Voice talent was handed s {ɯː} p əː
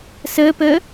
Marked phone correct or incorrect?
incorrect